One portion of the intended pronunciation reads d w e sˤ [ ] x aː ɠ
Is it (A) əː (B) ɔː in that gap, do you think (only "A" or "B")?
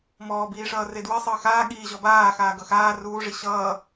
A